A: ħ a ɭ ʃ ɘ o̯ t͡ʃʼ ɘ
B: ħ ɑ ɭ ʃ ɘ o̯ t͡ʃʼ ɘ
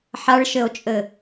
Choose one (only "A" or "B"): A